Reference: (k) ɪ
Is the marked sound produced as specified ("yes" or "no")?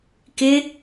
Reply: yes